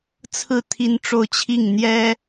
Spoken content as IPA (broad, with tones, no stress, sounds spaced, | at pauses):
t͡sʰ ɹ̩˥˩ t̪ʰ i˥ n ʈ͡ʂ o˥˧ ʊ̯ t͡ɕʰ i˥˩ ŋ n̪ j ɛ˥